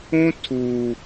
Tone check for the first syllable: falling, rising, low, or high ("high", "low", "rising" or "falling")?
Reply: high